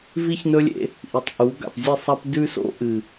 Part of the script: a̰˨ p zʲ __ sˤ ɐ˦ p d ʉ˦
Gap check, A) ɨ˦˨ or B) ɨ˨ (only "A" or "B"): A